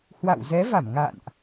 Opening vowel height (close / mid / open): open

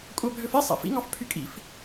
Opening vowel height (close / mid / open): open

